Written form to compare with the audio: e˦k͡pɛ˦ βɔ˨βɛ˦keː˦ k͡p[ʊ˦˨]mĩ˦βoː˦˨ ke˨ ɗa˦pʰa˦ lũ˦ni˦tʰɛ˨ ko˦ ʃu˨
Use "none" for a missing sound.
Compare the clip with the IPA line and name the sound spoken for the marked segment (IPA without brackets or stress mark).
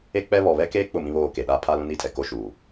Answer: ʊ˦˨